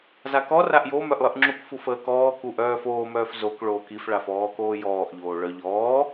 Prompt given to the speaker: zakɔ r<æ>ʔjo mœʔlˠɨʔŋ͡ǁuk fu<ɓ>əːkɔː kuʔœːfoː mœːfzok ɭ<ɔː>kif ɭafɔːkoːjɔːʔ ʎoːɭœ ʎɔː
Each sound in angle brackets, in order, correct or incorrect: incorrect, incorrect, incorrect

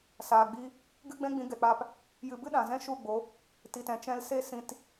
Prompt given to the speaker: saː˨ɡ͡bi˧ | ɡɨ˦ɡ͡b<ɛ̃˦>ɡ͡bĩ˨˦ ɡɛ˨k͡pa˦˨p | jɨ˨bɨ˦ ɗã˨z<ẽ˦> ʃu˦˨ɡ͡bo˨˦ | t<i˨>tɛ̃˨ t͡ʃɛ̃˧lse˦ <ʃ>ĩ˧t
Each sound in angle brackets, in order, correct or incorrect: correct, incorrect, correct, incorrect

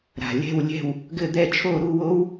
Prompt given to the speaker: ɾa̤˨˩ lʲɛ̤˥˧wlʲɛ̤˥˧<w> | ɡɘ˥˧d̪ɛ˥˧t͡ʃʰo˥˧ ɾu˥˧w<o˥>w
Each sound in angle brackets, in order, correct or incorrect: correct, correct

